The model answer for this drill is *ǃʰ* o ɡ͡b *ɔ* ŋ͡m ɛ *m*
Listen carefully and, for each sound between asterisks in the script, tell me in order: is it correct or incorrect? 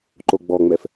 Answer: incorrect, correct, incorrect

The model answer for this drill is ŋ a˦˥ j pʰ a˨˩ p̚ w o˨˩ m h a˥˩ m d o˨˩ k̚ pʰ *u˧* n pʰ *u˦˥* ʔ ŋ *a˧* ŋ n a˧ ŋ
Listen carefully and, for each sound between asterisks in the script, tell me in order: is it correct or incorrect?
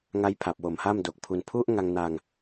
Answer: correct, correct, correct

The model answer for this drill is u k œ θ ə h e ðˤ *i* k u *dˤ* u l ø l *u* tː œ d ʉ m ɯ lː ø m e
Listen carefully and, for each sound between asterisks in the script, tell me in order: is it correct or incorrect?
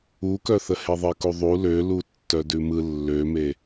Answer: incorrect, incorrect, correct

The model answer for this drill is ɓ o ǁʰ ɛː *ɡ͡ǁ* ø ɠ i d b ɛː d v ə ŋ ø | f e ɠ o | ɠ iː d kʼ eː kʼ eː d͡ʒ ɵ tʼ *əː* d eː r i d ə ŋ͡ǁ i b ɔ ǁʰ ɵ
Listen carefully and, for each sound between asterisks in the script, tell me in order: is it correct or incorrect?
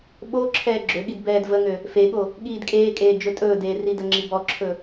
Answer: correct, incorrect

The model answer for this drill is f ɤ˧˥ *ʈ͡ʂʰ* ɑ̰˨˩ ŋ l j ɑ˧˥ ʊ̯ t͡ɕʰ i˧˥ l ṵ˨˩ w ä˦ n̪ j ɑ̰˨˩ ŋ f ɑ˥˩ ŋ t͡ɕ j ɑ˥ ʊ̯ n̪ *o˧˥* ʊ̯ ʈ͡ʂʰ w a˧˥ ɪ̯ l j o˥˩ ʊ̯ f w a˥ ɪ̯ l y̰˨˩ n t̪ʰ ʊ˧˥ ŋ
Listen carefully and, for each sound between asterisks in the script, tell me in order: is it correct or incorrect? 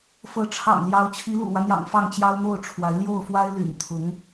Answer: correct, incorrect

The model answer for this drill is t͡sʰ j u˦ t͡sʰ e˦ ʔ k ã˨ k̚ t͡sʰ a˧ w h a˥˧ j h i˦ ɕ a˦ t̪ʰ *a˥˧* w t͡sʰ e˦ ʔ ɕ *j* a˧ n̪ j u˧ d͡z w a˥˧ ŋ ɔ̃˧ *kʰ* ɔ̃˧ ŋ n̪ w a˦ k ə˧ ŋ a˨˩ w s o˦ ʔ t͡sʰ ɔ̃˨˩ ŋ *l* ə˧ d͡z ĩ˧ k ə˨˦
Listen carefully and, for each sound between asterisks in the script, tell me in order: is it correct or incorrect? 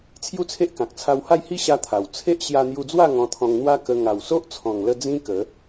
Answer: incorrect, correct, incorrect, correct

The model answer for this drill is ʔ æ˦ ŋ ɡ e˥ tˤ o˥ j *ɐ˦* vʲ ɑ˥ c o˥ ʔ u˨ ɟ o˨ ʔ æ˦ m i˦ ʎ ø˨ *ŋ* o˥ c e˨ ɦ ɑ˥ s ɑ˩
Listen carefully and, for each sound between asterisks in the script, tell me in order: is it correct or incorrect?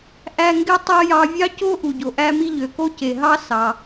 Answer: incorrect, incorrect

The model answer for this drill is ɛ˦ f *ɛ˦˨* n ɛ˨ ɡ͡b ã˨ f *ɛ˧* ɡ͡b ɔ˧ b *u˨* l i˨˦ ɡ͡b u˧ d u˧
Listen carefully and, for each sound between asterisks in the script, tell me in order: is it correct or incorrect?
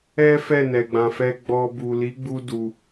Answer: correct, correct, correct

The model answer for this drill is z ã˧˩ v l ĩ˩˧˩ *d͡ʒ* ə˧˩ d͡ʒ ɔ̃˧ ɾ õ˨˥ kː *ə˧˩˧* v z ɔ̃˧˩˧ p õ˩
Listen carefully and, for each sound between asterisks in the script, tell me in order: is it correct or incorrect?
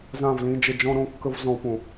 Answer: correct, incorrect

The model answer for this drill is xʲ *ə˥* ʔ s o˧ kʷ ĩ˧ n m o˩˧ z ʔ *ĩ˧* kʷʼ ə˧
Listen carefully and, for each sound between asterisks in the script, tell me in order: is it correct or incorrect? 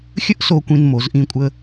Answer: correct, correct

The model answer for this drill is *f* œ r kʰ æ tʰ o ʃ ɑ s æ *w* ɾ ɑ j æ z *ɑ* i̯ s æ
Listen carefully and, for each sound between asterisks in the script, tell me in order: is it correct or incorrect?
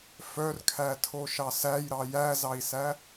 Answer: correct, incorrect, correct

